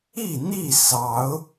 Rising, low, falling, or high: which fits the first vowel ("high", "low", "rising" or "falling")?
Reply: falling